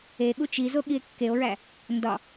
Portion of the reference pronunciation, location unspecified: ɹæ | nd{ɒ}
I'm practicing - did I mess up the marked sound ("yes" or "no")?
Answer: no